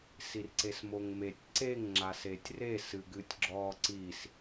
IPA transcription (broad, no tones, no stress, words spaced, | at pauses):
sirǀesmoŋmetʲ ǀeŋ ŋ͡ǁasetʲre sɨɡɨtʲɡ͡ǁɔ ǀis